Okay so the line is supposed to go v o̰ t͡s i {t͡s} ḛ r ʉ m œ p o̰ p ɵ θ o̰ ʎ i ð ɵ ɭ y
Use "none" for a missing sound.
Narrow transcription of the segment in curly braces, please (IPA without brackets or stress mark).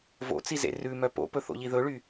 z